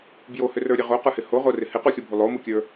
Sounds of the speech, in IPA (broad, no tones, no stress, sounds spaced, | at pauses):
b j o h ʏ r ə˞ ɾʲ æ ʁ o q ə˞ h ɪ h o ʁ o r ɪ h ɪ q u xʲ o bʱ u lˠ o m u kʲ ə˞